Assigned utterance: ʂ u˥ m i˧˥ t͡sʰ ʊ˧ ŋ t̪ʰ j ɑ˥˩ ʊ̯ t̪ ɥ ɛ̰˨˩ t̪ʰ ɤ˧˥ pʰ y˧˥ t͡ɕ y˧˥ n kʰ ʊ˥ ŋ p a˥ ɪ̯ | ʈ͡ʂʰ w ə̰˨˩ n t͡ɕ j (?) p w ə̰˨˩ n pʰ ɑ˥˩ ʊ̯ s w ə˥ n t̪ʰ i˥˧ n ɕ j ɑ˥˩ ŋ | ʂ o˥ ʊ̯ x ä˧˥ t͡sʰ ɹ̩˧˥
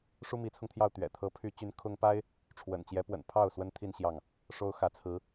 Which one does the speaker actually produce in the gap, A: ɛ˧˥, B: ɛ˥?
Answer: A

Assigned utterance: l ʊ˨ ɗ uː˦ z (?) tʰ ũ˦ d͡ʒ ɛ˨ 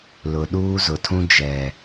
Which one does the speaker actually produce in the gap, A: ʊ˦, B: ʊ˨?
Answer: B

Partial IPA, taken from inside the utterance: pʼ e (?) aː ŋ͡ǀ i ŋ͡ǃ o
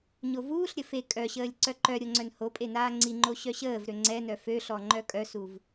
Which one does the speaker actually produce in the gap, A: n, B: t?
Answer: A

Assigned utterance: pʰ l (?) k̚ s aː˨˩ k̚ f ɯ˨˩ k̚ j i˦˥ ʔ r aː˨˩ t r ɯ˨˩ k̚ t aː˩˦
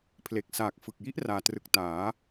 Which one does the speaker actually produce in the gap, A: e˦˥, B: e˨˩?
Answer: B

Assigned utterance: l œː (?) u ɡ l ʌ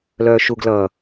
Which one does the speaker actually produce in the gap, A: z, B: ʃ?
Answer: B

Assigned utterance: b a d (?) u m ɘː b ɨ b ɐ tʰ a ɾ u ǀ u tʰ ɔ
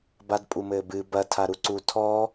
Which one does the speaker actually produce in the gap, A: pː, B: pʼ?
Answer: B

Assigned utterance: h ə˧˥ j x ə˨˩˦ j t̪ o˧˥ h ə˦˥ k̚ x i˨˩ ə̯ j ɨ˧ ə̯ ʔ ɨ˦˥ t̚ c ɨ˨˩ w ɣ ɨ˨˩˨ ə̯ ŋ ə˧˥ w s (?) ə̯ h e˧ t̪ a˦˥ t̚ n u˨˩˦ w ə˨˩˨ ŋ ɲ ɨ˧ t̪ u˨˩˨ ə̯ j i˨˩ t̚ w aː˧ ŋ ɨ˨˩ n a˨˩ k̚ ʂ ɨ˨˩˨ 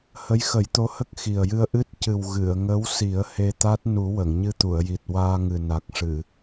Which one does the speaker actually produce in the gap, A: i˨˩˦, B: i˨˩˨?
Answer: A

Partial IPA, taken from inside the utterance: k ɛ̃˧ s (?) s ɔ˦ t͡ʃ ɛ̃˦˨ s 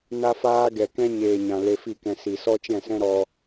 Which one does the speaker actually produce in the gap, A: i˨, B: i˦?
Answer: A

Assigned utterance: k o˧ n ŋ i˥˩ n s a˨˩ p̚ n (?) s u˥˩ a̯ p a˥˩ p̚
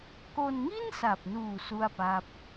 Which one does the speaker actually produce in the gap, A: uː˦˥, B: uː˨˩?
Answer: B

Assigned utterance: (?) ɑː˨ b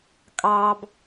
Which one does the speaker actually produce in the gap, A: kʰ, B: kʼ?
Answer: B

